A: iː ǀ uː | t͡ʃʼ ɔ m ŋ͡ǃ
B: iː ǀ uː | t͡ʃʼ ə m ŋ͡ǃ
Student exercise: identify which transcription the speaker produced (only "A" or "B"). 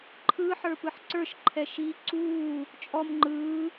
A